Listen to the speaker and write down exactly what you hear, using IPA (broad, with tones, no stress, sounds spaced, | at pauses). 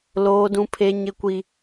l oː˦ d ũ˦ pʰ e˦ ɲ ɪ˦ kʷ i˦